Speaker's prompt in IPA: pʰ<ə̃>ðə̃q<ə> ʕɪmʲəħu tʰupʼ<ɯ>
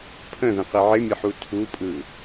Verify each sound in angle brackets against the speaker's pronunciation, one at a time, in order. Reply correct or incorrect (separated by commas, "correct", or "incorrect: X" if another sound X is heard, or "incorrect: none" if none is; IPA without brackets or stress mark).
correct, incorrect: ɪ, correct